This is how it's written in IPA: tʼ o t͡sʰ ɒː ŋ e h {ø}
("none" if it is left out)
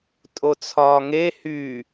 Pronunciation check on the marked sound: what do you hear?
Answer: y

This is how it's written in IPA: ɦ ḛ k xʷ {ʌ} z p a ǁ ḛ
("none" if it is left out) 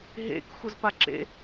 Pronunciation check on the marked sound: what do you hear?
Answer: ʌ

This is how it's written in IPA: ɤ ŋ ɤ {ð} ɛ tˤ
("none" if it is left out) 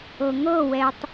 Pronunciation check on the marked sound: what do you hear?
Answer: w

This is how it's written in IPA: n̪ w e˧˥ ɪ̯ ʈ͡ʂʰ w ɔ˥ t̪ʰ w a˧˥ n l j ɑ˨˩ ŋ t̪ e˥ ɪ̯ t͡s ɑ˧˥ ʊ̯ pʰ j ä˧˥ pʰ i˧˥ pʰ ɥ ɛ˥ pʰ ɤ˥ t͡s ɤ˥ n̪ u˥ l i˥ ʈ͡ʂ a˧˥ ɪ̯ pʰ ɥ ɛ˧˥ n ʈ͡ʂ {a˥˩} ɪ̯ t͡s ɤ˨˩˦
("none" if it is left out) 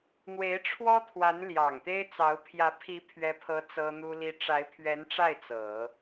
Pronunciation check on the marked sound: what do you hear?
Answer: a˥˩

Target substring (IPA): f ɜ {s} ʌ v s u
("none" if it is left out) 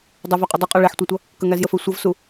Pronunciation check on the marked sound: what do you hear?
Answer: sʷ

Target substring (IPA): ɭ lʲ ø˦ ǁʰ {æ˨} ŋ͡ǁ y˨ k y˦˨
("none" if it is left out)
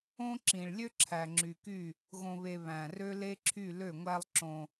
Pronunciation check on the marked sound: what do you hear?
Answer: æ˨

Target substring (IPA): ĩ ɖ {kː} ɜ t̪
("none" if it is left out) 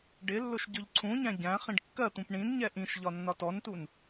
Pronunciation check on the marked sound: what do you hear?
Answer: kː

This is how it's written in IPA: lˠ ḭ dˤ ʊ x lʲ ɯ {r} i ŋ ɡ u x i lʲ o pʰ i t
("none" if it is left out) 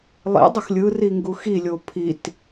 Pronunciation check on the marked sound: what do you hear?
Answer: r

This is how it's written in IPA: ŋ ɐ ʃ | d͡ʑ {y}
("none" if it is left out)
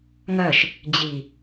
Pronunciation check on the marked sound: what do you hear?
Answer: i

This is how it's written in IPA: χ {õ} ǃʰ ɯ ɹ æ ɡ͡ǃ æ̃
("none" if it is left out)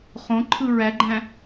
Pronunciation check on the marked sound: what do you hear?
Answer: õ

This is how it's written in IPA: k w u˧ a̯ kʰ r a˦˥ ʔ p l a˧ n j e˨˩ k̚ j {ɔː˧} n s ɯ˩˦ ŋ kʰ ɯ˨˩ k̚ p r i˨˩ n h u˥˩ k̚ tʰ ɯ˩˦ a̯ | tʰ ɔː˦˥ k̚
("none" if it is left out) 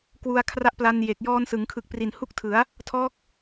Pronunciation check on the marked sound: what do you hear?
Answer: ɔː˧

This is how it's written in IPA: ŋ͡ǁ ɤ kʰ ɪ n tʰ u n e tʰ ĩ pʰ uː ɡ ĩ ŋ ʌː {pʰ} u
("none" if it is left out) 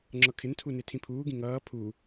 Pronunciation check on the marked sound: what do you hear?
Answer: pʰ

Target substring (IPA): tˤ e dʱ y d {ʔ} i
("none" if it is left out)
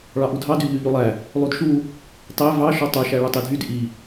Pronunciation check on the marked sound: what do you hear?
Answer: ʔ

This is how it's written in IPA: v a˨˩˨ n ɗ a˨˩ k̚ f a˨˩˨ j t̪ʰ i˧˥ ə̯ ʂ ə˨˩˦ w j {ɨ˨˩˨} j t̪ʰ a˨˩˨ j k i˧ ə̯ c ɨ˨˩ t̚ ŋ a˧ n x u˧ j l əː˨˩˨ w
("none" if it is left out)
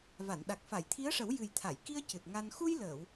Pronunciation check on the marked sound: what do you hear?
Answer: ɨ˨˩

